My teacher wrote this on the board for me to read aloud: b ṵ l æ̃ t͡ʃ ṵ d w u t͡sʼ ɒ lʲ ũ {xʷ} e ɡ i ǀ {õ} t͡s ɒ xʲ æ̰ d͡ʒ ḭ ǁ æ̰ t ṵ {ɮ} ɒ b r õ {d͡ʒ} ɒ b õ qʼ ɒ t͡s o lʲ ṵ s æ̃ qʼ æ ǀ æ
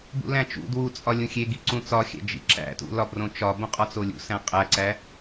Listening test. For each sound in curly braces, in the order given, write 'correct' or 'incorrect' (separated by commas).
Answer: incorrect, incorrect, incorrect, incorrect